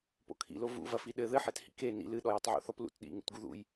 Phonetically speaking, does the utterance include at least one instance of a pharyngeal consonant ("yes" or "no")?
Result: yes